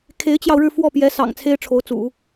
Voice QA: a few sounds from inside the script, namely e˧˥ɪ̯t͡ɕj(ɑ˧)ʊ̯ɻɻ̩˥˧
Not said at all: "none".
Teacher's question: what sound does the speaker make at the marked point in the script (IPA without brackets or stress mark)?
ɑ˧